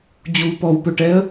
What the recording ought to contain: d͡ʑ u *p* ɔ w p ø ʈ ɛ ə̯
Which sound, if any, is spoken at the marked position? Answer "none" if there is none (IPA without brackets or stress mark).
p